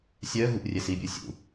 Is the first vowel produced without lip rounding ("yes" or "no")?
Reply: no